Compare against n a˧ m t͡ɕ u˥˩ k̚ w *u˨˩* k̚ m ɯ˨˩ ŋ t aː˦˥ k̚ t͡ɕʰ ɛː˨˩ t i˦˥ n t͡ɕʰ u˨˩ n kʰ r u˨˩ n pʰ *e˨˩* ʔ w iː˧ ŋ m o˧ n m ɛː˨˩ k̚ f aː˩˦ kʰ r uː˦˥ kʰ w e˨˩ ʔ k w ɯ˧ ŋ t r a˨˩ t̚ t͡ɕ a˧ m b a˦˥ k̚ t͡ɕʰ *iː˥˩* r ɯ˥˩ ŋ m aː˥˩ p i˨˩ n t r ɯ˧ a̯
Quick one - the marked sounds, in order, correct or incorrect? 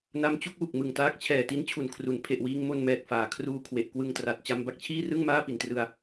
correct, correct, correct

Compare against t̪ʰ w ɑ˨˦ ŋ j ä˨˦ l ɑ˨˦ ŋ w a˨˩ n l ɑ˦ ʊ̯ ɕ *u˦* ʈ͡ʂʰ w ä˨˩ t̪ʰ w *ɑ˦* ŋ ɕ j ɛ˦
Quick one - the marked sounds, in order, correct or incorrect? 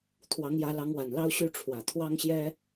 incorrect: y˦, correct

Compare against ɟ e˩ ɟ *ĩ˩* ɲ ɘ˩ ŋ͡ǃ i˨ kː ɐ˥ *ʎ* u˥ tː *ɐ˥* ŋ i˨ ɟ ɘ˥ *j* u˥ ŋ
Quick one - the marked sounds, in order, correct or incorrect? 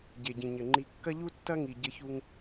correct, correct, correct, incorrect: ç

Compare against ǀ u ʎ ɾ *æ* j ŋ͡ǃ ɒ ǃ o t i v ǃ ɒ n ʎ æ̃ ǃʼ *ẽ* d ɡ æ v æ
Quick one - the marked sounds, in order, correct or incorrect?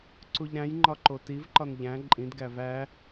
incorrect: æ̃, incorrect: ĩ

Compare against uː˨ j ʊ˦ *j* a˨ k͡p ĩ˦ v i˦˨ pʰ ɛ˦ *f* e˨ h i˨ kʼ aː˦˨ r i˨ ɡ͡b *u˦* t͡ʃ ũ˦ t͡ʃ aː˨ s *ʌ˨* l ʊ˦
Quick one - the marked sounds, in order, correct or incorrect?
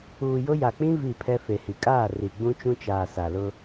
correct, correct, incorrect: ũ˦, incorrect: a˨

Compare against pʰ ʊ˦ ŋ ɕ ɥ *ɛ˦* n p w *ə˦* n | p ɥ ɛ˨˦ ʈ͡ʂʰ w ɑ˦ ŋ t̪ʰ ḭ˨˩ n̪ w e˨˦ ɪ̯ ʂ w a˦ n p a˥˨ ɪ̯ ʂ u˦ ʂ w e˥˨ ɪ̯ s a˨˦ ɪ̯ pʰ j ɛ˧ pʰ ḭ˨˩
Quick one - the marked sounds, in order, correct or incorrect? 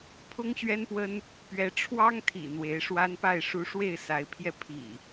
correct, correct

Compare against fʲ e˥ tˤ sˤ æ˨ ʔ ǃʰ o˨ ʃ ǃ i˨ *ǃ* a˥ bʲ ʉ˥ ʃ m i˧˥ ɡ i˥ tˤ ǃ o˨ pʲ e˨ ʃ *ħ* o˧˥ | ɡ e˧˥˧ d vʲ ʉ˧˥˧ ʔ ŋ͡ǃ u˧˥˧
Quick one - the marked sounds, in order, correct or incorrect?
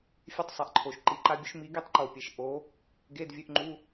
correct, incorrect: ʔ

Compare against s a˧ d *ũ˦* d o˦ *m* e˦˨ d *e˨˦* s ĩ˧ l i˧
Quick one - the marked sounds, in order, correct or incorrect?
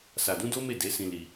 correct, correct, correct

